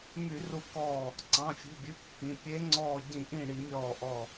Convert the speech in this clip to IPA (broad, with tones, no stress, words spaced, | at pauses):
my˧˩˧ru˧˩kɔː˧˩ | ǀɑ̃˩˧˩fʲṳ˩˧˩bʲʉ˩˧˩ kːĩ˩˧˩ pʲe˨˦ŋ͡ǀɔː˧˩ɟĩ˧˩˧ ʔĩ˧˩ ɽi˧˩˧mʲɔː˧˩ʔɔ˧˩